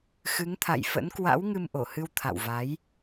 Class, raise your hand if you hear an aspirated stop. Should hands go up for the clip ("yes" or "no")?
yes